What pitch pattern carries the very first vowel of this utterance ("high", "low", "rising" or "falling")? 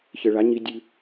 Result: low